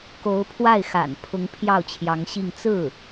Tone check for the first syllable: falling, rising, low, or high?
rising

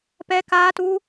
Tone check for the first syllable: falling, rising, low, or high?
high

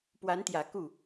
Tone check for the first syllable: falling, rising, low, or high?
rising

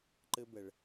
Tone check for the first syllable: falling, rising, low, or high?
high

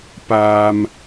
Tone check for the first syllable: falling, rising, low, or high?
low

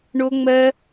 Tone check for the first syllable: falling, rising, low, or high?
high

